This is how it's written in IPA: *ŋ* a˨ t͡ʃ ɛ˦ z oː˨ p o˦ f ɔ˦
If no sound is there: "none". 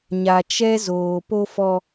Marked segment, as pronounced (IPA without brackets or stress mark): ɲ